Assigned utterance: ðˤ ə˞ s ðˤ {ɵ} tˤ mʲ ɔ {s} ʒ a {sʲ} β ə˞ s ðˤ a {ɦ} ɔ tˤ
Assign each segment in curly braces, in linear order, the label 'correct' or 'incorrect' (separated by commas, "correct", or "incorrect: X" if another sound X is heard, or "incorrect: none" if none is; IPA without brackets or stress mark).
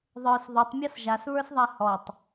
correct, correct, incorrect: s, incorrect: h